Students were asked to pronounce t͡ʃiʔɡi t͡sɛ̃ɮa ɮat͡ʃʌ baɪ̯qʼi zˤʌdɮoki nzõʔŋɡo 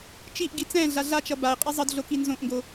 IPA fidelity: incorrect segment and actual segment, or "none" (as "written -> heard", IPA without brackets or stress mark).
none